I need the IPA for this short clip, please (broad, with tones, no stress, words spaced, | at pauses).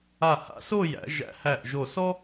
a˧˩ha̰˧so˥˧jæ̰˩˧ ʒæ̰˧hæ˧˩ʔʒo˧˩ sɔ˥